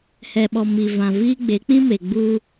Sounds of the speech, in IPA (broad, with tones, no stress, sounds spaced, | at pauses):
h ɛ˨ ɓ ɔ˨ m i˨ v ã˨ v iː˦ ɡ͡b e˨˦ k͡p ĩ˦ m e˨ ɡ͡b uː˦